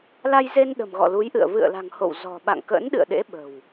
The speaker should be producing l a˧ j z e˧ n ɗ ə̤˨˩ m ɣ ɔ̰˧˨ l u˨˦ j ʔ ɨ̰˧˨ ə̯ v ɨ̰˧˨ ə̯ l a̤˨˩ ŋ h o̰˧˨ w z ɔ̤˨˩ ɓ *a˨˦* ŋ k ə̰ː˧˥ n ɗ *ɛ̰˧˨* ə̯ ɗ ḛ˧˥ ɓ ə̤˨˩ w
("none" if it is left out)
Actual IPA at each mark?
a̰˧˨, ɨ̰˧˨

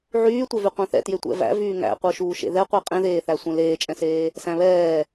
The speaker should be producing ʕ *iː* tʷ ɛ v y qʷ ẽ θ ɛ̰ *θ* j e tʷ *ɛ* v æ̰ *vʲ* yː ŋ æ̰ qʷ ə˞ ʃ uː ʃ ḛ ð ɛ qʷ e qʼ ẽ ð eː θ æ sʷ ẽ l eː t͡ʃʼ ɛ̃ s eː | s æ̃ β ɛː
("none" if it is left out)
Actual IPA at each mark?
yː, t, ɛ̰, v

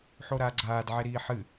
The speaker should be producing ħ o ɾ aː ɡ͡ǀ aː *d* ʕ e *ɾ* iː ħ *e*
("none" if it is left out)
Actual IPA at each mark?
d, ɾ, ɨ

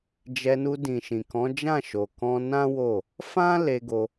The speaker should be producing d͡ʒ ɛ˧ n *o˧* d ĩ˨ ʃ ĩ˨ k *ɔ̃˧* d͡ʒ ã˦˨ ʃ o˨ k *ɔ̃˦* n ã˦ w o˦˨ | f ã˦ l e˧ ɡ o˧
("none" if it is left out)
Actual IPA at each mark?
u˧, ɔ̃˨˦, ɔ̃˧

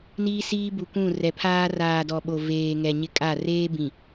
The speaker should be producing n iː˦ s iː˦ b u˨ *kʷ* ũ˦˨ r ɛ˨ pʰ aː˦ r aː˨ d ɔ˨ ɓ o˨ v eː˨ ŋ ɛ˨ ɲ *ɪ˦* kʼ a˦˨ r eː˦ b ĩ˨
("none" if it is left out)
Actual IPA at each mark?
kʷ, ɪ˦

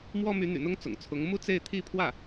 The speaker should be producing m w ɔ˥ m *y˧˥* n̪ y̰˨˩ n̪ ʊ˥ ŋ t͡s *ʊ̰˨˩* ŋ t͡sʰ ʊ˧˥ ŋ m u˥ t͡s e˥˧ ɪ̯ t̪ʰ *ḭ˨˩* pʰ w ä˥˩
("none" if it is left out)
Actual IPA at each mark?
y˧˥, ʊ̰˨˩, i˥˧

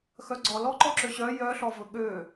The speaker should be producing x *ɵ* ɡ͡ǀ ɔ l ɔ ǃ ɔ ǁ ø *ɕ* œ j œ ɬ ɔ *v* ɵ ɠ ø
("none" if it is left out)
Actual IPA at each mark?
œ, ɕ, v

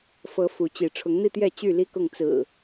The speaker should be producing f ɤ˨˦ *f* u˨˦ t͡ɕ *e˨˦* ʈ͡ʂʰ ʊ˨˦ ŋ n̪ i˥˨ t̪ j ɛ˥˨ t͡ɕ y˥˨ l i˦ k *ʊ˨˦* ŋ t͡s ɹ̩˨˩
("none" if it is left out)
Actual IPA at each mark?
f, i˨˦, ʊ˥˨

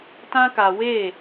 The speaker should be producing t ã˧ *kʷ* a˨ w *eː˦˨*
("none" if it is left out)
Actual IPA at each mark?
k, eː˦˨

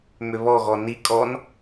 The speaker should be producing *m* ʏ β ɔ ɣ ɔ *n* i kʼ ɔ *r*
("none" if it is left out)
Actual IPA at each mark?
m, n, n

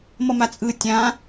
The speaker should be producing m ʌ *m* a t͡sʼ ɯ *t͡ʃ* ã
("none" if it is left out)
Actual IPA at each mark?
m, tʲ

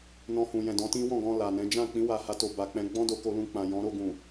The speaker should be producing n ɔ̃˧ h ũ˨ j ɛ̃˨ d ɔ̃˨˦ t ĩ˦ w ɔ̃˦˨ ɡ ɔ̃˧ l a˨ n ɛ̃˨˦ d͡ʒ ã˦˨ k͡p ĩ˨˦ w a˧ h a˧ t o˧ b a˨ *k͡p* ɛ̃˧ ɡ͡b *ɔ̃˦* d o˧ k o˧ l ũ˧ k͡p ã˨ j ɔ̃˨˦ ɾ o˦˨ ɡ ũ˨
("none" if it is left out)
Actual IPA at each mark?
k͡p, ɔ̃˦

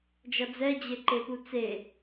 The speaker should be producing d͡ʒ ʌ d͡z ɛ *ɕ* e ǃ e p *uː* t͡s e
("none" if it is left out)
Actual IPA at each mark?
d͡ʑ, u

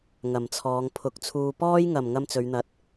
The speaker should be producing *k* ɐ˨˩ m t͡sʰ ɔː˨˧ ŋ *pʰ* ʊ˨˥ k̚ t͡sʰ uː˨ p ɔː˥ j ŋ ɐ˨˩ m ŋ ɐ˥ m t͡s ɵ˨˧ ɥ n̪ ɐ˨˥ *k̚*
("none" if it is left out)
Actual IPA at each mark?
ŋ, pʰ, t̚

